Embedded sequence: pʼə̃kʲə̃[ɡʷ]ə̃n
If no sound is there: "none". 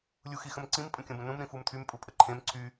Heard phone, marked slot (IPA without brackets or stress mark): b